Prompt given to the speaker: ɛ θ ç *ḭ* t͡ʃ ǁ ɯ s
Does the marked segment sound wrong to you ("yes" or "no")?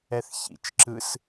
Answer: no